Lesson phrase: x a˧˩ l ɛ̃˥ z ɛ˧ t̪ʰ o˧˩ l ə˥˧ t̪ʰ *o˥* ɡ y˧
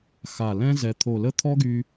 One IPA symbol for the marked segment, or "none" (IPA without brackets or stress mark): ɔ˥